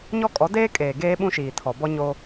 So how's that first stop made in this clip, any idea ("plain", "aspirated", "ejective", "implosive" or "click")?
ejective